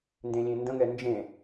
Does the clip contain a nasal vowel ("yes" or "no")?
yes